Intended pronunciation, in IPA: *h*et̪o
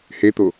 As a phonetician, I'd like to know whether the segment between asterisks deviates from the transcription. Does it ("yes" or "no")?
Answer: no